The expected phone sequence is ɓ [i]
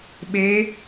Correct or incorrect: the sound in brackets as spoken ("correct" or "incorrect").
incorrect